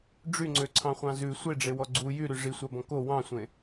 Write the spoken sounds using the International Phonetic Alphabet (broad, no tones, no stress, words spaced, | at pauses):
ɖ͡ʐyŋ͡ǀøǀʰɑ̃χʷɑ̃ zʉ sʷeɖ͡ʐewɔ ɡ͡ǀu jyɾy ʐisʷɑbɔ̃ ko wɑ̃sʷẽ